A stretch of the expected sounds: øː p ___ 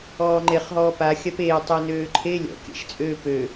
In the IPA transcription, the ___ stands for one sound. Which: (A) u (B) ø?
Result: B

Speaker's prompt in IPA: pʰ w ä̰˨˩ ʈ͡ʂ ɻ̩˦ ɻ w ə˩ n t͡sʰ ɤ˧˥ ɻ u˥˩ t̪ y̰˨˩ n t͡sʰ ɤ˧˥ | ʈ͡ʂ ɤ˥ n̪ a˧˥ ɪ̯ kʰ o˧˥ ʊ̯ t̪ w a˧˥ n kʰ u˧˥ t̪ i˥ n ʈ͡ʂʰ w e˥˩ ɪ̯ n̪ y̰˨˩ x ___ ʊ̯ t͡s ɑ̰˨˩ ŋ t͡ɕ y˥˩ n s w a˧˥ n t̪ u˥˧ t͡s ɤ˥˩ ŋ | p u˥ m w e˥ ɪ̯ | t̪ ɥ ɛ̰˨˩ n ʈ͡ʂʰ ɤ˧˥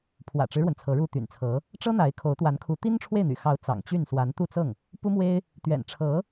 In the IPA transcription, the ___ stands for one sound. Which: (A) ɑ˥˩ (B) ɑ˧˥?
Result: B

